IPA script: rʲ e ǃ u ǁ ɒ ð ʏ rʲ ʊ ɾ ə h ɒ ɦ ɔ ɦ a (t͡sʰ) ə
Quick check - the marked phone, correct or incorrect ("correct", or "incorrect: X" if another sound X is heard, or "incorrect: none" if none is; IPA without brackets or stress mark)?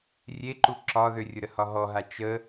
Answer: incorrect: t͡ʃ